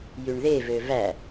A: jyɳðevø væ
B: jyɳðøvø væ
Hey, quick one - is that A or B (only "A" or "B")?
A